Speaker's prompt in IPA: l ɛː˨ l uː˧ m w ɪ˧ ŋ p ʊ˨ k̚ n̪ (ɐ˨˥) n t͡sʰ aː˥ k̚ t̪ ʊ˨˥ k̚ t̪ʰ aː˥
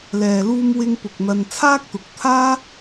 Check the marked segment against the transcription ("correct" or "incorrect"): incorrect